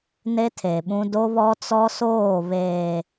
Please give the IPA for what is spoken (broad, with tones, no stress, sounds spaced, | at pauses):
n e˦ tʰ e˨ ɓ ũ˦ d o˦ β ɔ˦ t͡s ɔ˦ s oː˦˨ β eː˨